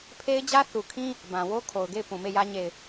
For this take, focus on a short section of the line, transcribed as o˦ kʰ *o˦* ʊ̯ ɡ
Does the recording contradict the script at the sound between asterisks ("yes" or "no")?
yes